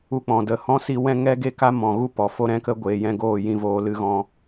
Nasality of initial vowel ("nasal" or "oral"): oral